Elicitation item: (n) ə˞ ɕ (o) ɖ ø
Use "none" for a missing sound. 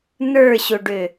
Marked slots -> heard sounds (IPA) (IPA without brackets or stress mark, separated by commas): n, o